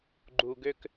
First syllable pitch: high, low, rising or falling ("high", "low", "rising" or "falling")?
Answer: low